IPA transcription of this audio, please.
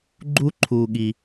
ɡ͡ǃ u˥ ǃʰ uː˧ ɠ i˧

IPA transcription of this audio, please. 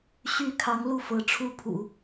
ɕ y˧˥ kʰ ɑ˧˥ ŋ l u˥˩ f ɤ˧˥ ʈ͡ʂʰ u˥ pʰ ṵ˨˩˦

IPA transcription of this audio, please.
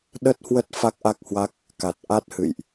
ɗ ə˦˥ t̚ h w ə˦˥ t̚ f a˦˥ k̚ ʔ a˦˥ k̚ h w a˦˥ k̚ | k a˨˩ t̚ ʔ a˦˥ t̚ h ɨ̰˧˨ j ʔ

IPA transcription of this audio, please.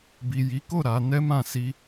b i˨ j i˨˦ k o˦˨ ɾ a˨˦ n ɛ˦ m ã˦˨ s i˧

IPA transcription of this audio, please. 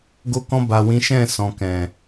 ɡ o˧ k ɔ̃˧ b a˨ w ĩ˨˦ ʃ ɛ̃˦˨ s ɔ̃˨ k ɛ̃˨

